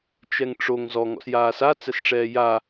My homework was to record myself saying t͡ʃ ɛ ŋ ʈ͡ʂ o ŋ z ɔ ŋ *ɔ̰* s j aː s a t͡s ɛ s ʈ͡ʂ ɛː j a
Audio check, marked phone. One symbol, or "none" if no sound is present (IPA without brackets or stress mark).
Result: ɔ̰